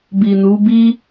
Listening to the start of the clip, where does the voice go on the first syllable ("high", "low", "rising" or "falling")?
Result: low